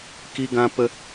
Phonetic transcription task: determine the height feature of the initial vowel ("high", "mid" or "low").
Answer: high